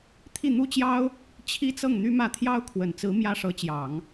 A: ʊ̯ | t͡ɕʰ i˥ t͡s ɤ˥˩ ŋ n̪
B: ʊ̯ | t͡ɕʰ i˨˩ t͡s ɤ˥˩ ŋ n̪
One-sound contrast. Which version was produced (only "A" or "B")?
A